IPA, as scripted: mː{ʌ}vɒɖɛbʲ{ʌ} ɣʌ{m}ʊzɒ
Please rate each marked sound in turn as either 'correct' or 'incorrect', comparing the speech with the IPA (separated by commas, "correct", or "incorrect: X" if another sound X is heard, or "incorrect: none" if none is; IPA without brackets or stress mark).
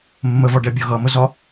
incorrect: ə, correct, correct